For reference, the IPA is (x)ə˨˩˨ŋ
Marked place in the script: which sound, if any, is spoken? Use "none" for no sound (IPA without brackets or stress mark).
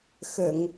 x